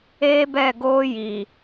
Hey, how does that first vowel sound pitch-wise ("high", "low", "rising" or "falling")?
high